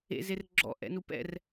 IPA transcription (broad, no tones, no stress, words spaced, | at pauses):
ḛzer ɡ͡ǁɔ̰ʔɛ̰nu pɛ̰r